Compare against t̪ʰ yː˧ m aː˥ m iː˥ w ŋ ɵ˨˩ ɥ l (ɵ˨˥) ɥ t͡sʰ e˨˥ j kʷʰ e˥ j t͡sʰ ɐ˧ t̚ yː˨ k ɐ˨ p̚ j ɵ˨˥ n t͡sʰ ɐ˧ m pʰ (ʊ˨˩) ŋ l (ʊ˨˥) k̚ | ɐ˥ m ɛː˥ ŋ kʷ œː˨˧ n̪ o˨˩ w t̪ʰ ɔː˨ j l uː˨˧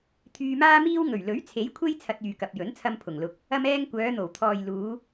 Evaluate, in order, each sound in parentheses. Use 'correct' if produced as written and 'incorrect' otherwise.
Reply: correct, correct, incorrect

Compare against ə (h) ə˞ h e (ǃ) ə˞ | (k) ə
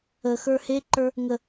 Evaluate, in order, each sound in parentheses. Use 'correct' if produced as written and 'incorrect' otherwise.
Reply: incorrect, correct, incorrect

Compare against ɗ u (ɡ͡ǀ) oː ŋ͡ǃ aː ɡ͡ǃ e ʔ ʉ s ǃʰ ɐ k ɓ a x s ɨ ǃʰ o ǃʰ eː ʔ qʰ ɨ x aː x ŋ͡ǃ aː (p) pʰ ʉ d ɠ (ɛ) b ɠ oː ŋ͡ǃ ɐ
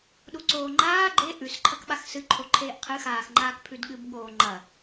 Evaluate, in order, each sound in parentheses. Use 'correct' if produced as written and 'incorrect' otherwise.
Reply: incorrect, incorrect, incorrect

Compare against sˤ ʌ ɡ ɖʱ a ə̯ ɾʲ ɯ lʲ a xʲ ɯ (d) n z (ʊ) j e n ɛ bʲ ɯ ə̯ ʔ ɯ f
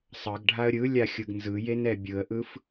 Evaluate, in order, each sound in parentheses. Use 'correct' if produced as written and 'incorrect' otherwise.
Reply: incorrect, incorrect

